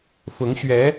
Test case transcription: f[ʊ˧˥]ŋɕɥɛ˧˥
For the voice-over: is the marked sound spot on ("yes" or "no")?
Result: yes